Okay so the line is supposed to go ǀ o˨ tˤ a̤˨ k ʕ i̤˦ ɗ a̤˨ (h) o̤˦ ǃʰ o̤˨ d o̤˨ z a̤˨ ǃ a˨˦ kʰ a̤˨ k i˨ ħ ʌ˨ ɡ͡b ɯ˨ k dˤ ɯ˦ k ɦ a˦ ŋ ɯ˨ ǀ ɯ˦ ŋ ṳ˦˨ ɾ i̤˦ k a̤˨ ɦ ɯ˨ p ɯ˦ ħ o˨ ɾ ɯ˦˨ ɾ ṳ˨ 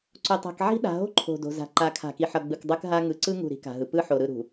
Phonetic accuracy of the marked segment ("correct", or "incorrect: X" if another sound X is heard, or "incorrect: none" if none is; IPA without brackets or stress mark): incorrect: ɦ